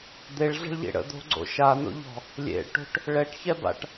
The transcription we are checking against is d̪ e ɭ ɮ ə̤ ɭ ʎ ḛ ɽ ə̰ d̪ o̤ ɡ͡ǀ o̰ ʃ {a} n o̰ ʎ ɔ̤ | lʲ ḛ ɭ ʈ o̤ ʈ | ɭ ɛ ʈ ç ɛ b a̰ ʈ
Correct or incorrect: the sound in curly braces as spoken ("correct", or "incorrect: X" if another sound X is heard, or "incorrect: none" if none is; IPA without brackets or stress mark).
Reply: correct